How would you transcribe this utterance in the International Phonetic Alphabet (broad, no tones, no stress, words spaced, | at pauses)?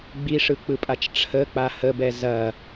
ɡ͡biʂɯk͡pɯpʼat͡ʃ ʈ͡ʂʰək͡pa həbɛ zɐ